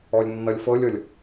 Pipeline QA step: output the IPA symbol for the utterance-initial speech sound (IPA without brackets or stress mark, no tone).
ɔ